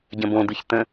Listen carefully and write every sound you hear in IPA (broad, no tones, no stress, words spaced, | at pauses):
ɟə̃bõd̪ɯç t̪ə̃